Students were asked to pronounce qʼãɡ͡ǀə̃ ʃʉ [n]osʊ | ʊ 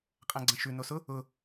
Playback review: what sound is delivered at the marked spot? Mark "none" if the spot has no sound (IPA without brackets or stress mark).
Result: n